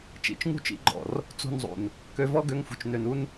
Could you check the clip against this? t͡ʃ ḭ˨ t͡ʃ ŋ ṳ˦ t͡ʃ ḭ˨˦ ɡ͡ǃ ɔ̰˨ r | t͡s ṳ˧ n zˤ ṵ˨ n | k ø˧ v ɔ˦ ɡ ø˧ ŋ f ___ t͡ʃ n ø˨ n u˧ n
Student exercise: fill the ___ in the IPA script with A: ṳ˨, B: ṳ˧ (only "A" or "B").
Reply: A